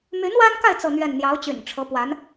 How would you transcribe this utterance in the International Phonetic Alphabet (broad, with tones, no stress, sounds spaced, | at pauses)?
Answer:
m y˧˥ n w a˥ n k a˥˧ ɪ̯ t͡s ɤ˥˧ n̪ ɥ ɛ˥˩ n n̪ j ɑ˧˥ ʊ̯ t͡ɕ y̰˨˩ n ʈ͡ʂʰ ɤ˧˥ p w a˧˥ n